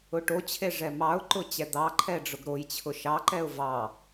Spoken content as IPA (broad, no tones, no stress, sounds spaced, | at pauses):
ʊ ʈ o t͡ɕʰ e ʐ ɛ m ɑ ʊ̯ ǃ ʊ t͡ɕ ɛ d̪ ɑ ǃʰ ɛ ɖ͡ʐ ʊ ɡ ɾ o j t͡ɕʰ ʊ ʃ ɑ ǃ ɛ ʊ̯ v ɑ